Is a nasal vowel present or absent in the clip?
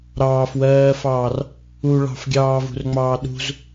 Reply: absent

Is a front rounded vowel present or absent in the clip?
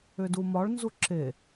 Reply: present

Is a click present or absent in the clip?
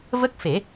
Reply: absent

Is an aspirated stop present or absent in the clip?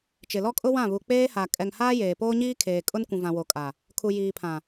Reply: present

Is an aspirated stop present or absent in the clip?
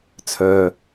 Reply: present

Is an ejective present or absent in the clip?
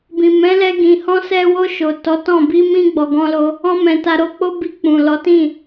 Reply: absent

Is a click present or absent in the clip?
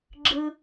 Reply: present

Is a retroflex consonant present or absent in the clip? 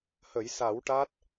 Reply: present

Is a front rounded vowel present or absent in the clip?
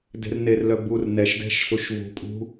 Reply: present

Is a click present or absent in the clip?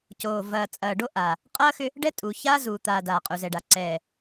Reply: present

